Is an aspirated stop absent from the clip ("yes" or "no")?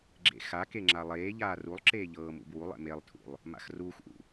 no